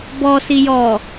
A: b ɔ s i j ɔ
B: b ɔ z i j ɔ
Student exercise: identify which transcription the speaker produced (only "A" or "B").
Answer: A